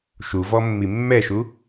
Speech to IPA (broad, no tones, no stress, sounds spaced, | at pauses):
ʃ u v ɔ mː i mː ɛ ʃ u